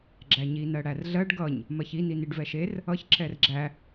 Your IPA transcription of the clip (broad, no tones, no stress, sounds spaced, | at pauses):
ɡ͡ǁ æ ɲ i n ɜ ɽ æ r ɮ ɜ ɖ ɡ ʌ ɲ | m ɜ ç i n i n i ɖ v ɛ ʃ e r | ʌ ç ǁ ɛ r ɡ͡ǁ æ